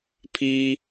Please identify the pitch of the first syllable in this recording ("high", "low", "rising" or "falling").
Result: high